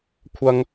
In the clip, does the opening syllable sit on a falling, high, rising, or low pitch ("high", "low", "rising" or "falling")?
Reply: high